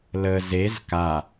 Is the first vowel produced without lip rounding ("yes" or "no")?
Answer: yes